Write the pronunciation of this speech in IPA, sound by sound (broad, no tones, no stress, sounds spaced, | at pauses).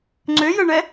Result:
ŋ͡ǀ ø j ə ɳ ɛ